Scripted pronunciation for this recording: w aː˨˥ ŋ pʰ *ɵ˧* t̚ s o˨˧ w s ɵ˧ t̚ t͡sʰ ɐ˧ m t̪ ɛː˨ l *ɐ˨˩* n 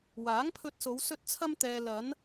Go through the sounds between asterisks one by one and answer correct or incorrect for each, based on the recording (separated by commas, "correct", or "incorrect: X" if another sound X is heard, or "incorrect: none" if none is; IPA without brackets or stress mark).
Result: correct, incorrect: ɐ˨˧